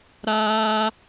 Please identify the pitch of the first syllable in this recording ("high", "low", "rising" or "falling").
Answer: high